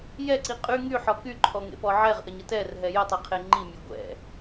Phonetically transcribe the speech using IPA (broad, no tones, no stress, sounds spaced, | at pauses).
j ɛ ǀ i qʼ y ŋ y ħ ɔ k y ǃʰ ɔ ŋ ḛ p ɔ ʕ ɛ ʁ ʔ ə ɲ ə t ɛ r ɦ ɛ j ə tˤ i qʰ e ŋ͡ǃ i mʲ e ɡʷ ɛ̰